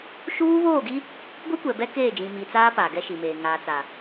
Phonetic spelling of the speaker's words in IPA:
ʃuː˦βoː˦˨ɡi˦ | ɡʷi˦kʷɛ˨ bɛ˦keː˦˨d͡ʒĩ˨ mi˨t͡saː˦ paː˨ɡɛ˦ʃi˨meː˨ ŋaː˨t͡sa˨

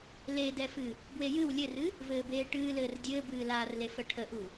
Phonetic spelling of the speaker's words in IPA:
ledɛfɨ | bwejɨw lʲɘrɨ | vɘːbeːʈɨːlɘːr dʲɘːbɨːlaːrle fəʈʰəʔu

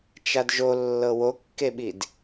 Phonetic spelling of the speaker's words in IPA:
t͡ʃadʒolːɤ wokːeɓid

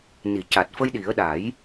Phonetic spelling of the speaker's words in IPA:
ni˨˩˨ca˨˩t̚fə˧jɗi˨˩˦ə̯ ɗa˨˩˦j

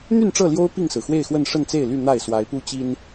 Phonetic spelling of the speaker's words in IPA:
n̪y˥˨nʈ͡ʂɤ˥˨ ljo˦ʊ̯ pi˥˨ŋsɹ̩˩xwe˥˨ɪ̯xwə˥˨n ʂə˥˨nt͡se˥˨ɪ̯ly˥˨ n̪a˥˨ɪ̯swa˨˦ɪ̯pu˦t͡ɕi˦n

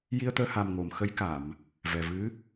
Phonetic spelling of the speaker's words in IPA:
ji˧ə̯t̪əː˧ha˨˩m ŋo˨˩˨mxə˧˥j ka˨˩˨m | vɛ˨˩vɨ˧˥

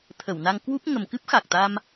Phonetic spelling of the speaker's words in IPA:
t̪ʰə˧˩wna˧ŋ kwu˦˥p̚ ŋə˨˩mkɨ˦˥p̚xa˨˩k̚t̪a˧m

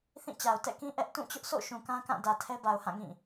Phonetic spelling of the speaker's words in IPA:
θĩ˦˨t͡ɕa˨ʊ̯ tɛ̰˦˨kĩ˦ ʔɛ˦ʔ tũ˦˨t͡ɕʊ˦ʔsʰo̰˦˨ ʃũ˨kã˦kã˦˨ dä˨tʰɛ˦ba˨ʊ̯ hã˦˨ŋĩ˦˨

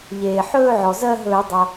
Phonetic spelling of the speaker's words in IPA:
ʎeː˩ħɵː˥˧ʕɔ˩ zɜ˥˧ɦɵː˧˩˧ dˤʌ˩

